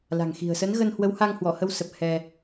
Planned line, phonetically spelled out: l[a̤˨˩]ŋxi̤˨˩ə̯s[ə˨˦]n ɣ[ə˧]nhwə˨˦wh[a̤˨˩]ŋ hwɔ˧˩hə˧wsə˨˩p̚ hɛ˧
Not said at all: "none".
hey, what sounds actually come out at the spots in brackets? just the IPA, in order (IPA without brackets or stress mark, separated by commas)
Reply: a̤˨˩, ə˨˦, ə˧, a˧